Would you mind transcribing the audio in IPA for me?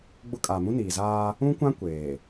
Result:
ɡ͡b ʊ˦ kʼ aː˨ m ũ˦ n iː˨ z aː˦ | ũ˦ kʷ ã˦ kʷ eː˨

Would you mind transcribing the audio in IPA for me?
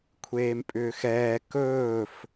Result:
kʷʰ eː m pʼ ʏː x ɛː k ɵː f

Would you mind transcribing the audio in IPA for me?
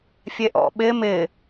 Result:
fʲ e ʔ ɔ̰ ɓ ɪ m ɪ

